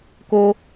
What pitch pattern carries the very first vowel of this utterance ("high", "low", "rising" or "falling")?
high